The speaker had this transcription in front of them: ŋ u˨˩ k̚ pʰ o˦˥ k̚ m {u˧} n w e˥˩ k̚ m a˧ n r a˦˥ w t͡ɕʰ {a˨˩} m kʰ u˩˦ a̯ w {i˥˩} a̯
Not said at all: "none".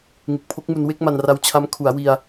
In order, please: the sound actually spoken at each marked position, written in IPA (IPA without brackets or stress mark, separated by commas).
u˧, a˦˥, i˧